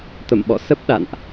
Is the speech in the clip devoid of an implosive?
no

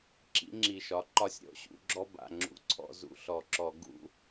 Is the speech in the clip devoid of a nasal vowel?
yes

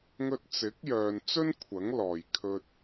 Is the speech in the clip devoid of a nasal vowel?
yes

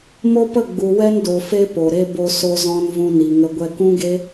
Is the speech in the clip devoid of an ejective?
yes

